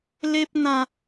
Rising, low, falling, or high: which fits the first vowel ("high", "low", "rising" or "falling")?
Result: high